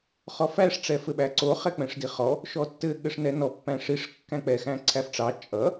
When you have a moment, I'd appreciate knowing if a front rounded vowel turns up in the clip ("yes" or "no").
no